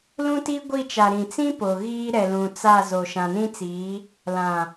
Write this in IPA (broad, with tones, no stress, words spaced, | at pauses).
lũ˦ti˦ ɡʷi˦˨ t͡ʃa˨ɾĩ˨ t͡sĩ˦ po˨ɣiː˦ ɾɛ˨ lũ˨t͡sa˦˨ zoː˨ʃã˨nĩ˦t͡siː˨˦ | lã˨